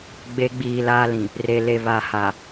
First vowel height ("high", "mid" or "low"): mid